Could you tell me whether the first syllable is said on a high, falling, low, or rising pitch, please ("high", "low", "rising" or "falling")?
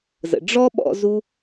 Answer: low